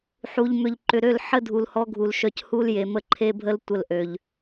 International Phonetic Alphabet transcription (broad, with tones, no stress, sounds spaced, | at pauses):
ħ u˨ ʎ m ʏ˨ ʎ ǃ ʏ˨ ɾ ø˦˨ l ħ ə˦ dʱ u˨ l h ɔ˦ ɡʱ u˨ l ʃ œ˨ c h u˦ l j e˨ m ə˦ ǃʰ e˦ bʱ ə˦ l tʷ ə˦˨ l ʔ ø˨ ʎ